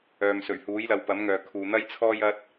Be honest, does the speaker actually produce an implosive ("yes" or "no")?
no